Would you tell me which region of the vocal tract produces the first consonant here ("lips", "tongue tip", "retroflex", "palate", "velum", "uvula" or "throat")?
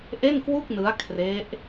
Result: throat